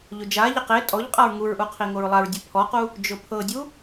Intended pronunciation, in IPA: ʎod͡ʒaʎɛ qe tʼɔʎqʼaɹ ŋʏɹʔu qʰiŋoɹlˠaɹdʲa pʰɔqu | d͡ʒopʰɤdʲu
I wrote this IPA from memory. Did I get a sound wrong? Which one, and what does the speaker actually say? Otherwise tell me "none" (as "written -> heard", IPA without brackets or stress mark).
ʏ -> u